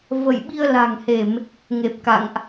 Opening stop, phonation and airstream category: implosive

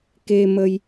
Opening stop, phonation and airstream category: plain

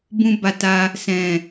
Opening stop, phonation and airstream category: plain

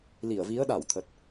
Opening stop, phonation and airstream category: implosive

